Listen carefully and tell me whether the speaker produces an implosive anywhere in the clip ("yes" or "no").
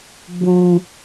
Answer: no